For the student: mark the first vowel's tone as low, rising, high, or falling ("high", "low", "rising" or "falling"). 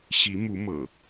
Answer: rising